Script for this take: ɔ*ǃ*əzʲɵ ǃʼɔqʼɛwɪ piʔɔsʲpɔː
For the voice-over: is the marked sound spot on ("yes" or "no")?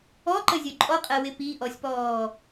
yes